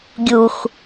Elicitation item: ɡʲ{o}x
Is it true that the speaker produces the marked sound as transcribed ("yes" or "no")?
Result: no